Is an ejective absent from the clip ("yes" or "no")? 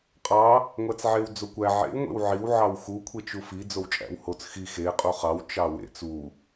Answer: no